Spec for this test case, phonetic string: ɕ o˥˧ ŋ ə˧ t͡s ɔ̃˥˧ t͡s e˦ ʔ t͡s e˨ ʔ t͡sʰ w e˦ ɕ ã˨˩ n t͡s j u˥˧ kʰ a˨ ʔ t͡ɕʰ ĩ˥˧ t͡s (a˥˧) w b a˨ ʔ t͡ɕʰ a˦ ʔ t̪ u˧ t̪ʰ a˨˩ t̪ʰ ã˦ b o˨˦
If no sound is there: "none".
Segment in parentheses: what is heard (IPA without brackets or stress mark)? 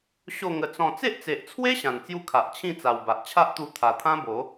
a˨˩